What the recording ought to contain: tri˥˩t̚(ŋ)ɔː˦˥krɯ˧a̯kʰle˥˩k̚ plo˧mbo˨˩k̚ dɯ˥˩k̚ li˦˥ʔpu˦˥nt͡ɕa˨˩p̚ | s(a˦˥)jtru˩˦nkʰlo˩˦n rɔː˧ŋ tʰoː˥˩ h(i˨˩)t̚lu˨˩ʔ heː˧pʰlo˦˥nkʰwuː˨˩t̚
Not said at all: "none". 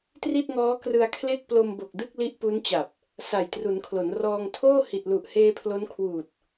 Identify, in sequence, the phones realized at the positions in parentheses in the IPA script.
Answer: ŋ, a˨˩, i˨˩

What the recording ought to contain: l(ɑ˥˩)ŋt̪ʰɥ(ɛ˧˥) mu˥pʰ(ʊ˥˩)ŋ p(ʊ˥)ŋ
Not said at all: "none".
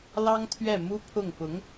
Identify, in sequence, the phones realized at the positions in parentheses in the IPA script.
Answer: ɑ˥, ɛ˥˩, ʊ˥˩, ʊ˧˥

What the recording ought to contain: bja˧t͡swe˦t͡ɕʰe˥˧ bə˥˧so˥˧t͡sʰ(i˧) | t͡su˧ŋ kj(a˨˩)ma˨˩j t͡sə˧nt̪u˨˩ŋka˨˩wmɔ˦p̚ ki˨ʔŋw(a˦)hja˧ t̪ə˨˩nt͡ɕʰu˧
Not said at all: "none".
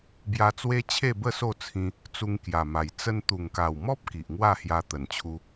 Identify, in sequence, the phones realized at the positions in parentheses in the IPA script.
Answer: ĩ˧, a˨˩, a˥˧

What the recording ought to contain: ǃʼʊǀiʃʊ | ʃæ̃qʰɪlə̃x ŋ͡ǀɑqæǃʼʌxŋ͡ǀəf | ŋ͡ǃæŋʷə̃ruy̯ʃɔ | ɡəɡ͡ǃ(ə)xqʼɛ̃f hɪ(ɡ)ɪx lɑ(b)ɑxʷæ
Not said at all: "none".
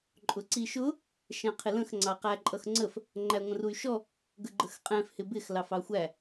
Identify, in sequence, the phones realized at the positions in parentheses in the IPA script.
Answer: ə, b, f

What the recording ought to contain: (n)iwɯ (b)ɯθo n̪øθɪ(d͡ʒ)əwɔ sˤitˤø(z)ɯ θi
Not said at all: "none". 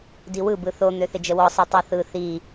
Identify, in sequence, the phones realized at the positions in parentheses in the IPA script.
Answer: d, b, d͡ʒ, θ

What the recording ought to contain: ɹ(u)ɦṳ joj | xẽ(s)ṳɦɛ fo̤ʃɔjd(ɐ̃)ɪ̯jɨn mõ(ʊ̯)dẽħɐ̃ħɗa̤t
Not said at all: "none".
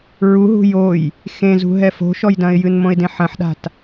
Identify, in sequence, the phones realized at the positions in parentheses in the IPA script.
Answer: u, z, ɐ̃, ɪ̯

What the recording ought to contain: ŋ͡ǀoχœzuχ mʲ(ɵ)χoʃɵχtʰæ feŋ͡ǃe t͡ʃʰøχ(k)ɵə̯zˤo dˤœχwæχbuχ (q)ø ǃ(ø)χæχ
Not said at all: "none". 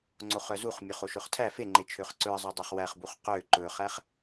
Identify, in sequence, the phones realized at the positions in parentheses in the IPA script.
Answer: œ, ǀ, q, ɵ

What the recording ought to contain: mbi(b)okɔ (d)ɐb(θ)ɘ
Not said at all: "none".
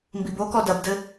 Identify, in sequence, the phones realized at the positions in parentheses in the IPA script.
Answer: b, d, d

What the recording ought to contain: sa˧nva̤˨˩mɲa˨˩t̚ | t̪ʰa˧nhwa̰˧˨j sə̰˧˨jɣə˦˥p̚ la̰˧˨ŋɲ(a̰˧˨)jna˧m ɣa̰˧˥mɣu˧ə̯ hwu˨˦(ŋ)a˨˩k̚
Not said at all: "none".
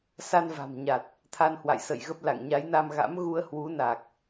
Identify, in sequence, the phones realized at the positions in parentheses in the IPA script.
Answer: a˨˦, n

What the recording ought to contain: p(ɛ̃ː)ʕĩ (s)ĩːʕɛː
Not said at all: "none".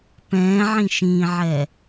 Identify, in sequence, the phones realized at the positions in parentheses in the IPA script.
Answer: ɛ̃ː, ʃ

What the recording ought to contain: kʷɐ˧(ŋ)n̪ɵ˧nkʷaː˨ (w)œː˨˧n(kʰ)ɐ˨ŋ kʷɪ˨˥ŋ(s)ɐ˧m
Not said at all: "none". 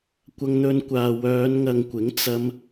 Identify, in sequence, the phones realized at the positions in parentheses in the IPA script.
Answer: ŋ, w, ŋ, t͡s

